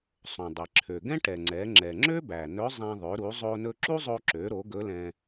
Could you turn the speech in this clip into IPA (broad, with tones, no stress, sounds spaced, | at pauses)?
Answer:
sˤ õ˩ dˤ ɛ˩ ǁʰ ø˩ ɡ ɛ̃˥ ʈ ɛ˩ ŋ͡ǀ ɛ˩˧ ŋ͡ǁ ɛ˩ ŋ͡ǁ ø˥ b æ˩ n ɵ˧˥ zˤ æ̃˧ ðˤ ø˩˧ ɾ u˩˧ zˤ o˧ n ɵ˧ ǁ u˥ zˤ o˧ ǁ ø˩˧ ɾ o˩˧ ɡ ɵ˧˥ l ɛ̃˧